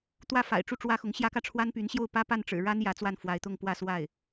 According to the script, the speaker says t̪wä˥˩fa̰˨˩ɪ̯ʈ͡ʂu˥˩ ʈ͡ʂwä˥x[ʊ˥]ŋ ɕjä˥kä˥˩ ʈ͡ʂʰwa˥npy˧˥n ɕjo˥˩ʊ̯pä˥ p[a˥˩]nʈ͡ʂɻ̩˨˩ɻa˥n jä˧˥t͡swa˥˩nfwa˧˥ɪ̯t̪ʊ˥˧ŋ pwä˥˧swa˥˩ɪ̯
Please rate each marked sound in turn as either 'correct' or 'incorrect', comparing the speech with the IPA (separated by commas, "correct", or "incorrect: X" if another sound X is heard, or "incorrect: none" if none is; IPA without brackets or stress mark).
incorrect: ʊ˧˥, correct